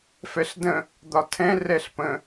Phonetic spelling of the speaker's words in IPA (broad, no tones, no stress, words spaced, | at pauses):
fɛɬdə̃ | d̪ɒtʰɛ̃ rɛɬpə̃